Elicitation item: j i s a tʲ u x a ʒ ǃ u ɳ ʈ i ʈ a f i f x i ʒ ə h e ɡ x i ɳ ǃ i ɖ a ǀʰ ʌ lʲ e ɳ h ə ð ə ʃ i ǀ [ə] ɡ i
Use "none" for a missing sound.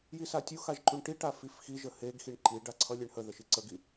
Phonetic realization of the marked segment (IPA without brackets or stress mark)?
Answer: ə